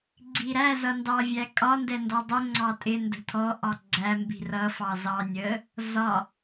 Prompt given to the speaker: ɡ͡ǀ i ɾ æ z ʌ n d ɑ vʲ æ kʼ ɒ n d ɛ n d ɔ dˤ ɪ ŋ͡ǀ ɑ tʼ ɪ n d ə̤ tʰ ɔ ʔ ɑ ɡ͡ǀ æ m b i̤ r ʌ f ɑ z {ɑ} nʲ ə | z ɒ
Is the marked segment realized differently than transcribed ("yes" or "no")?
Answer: no